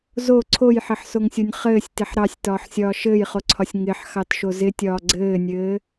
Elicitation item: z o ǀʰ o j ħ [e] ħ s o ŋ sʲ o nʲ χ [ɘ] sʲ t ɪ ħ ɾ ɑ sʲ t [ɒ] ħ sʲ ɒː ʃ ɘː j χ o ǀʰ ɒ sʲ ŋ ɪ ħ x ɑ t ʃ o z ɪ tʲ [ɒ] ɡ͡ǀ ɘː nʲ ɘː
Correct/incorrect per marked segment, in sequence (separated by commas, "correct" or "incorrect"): incorrect, incorrect, incorrect, incorrect